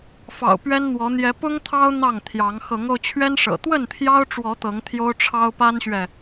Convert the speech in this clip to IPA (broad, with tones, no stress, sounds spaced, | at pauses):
f ɑ̰˨˩ ʊ̯ p ɥ ɛ˦ n n̪ w ɔ˨˦ n̪ j ɛ˨˦ p ʊ˦ ŋ t̪ʰ ɑ˦ ʊ̯ n̪ ɑ˥˨ ŋ t̪ʰ j ɑ˨˦ ŋ x ɤ˨˦ ŋ o˧ ʊ̯ t͡ɕʰ ɥ ɛ˦ n ʂ ɤ̰˨˩ t̪ w ə˥˨ n t̪ʰ j ɑ˦ ʊ̯ ʈ͡ʂ w ɔ˨˦ t̪ ɤ˨˦ ŋ t̪ʰ j o˦ ʊ̯ ʈ͡ʂʰ ɑ˦ ʊ̯ p a˦ n ɕ ɥ ɛ˨